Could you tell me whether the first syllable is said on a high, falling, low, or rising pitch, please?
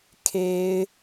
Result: high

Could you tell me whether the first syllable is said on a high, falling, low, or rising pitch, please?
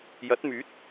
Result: rising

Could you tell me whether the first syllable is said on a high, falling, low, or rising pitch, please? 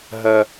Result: high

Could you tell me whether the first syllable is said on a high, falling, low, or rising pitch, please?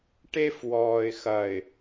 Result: high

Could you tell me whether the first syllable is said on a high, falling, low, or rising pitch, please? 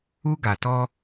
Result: high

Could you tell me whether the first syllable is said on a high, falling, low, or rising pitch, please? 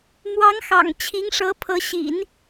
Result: rising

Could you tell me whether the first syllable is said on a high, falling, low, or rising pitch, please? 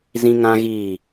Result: high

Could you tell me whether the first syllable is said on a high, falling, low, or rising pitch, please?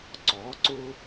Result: rising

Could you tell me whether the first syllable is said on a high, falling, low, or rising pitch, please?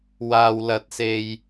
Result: low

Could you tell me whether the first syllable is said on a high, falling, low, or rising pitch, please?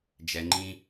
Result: low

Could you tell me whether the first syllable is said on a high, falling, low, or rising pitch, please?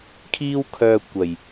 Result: high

